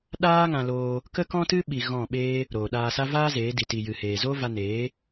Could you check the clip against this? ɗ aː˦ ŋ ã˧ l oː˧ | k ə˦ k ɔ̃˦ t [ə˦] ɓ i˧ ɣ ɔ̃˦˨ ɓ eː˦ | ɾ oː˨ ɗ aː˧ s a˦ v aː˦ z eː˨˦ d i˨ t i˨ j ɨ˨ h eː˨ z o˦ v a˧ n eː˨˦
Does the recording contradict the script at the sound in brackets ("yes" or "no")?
yes